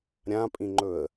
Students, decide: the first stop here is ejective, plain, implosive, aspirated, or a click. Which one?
ejective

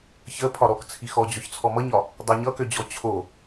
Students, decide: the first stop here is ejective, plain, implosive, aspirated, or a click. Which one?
aspirated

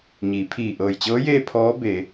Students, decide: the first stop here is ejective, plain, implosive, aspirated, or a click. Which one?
aspirated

